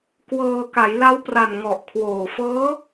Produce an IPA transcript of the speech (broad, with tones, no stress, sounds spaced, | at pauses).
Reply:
k w ɤː˧ k a˩˦ j l a˦˥ w p r a˨˩ n ŋ ɔ˨˩ ʔ kʰ w oː˨˩ f ɤː˦˥